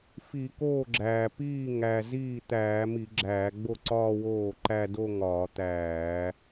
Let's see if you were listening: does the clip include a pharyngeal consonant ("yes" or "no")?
no